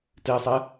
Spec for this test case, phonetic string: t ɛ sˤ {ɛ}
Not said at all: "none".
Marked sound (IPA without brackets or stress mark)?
ɛ